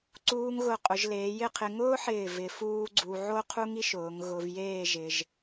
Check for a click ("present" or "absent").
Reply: present